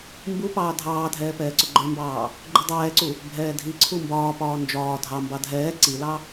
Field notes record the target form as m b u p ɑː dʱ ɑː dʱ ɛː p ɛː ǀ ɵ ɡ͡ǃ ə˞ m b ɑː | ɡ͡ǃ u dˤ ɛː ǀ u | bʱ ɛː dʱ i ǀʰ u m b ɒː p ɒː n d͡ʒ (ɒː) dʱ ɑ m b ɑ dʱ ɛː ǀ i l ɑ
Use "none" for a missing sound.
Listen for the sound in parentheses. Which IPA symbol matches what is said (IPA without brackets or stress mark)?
ɒː